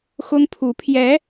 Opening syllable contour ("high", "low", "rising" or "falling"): high